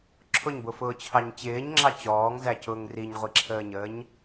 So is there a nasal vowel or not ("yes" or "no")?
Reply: no